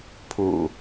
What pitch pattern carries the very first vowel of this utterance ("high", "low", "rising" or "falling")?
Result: low